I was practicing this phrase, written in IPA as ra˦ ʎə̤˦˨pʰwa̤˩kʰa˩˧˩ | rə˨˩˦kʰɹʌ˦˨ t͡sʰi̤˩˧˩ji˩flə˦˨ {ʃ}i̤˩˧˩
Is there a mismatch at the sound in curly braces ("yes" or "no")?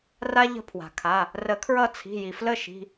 no